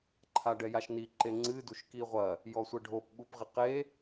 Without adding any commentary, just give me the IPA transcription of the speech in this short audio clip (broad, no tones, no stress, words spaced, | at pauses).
ǃʰaɖɛjaʃni ǃeŋ͡ǀɨ duʃkiʁʷɐ | jɔsʷɨɖʱop ɓupʁiqe